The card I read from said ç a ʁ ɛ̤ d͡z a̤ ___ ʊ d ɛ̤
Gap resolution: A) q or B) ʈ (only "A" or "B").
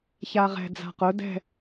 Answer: A